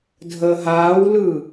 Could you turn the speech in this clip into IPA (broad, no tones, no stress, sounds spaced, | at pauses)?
dʱ əː ɦ aː w l ɯ